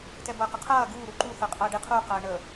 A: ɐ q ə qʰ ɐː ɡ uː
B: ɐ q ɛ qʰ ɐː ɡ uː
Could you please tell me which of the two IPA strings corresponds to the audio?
A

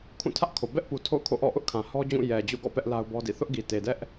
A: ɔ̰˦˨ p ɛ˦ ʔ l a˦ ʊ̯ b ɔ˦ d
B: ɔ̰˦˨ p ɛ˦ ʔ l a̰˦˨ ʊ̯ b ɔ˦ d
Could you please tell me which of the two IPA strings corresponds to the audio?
A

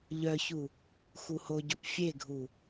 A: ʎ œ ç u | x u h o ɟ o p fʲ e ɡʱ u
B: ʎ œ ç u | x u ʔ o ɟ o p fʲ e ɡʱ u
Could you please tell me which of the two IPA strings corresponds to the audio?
A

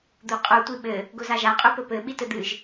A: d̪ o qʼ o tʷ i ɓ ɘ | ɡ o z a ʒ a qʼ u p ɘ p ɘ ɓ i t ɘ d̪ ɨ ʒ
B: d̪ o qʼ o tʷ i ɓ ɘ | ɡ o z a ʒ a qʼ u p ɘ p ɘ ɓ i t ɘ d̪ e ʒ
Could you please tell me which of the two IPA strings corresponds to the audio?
A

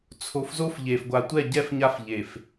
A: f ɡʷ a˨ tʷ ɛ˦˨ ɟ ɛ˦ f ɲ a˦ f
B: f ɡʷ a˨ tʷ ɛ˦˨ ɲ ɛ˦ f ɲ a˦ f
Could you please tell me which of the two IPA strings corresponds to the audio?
A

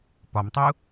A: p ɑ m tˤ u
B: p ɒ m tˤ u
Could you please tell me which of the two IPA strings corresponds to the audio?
B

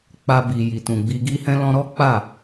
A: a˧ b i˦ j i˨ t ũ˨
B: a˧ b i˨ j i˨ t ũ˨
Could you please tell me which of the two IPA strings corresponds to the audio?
B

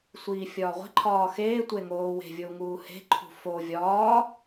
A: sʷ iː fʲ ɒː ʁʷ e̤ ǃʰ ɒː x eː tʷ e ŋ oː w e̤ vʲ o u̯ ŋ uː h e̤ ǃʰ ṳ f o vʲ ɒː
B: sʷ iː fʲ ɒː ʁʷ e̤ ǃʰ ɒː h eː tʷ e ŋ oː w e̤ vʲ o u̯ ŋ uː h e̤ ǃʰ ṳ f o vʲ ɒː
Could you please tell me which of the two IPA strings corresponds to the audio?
A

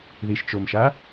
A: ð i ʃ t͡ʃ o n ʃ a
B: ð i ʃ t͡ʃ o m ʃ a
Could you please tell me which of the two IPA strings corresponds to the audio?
B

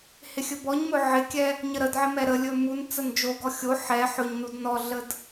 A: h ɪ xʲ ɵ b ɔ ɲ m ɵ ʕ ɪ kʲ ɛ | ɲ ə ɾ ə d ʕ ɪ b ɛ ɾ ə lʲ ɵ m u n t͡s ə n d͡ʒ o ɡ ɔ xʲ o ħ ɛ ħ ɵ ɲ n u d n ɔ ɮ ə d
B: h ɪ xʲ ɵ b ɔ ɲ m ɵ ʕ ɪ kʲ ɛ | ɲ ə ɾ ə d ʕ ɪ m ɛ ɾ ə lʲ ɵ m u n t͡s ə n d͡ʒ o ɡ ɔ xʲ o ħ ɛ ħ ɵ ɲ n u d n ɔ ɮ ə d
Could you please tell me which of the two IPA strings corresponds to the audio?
B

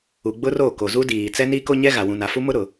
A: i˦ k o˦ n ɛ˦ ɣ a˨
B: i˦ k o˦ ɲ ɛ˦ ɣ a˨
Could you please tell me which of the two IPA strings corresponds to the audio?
B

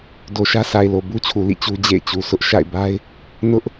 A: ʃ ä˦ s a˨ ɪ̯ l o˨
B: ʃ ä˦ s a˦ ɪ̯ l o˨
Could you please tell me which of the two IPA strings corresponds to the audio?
A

